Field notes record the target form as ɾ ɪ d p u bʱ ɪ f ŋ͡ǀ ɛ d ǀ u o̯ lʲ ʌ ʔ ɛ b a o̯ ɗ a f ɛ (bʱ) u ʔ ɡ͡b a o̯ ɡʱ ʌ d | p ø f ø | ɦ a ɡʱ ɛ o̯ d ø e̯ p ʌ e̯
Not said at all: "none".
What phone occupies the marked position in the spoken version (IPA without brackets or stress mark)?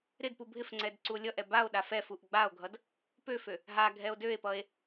f